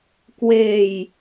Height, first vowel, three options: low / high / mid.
mid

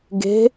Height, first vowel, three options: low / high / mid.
mid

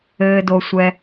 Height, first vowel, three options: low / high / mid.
mid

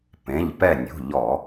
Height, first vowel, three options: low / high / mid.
mid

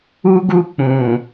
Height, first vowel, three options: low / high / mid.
high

